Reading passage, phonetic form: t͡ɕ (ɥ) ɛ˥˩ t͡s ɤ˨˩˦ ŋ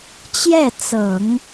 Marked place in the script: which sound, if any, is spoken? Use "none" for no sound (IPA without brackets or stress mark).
j